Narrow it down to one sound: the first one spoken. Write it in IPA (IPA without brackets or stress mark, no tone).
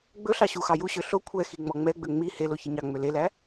ɡ͡b